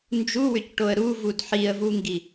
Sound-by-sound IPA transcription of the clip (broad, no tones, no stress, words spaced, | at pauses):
nd͡ʒuwʏcʈoə̯ ɾuvud ħiə̯vuŋɡi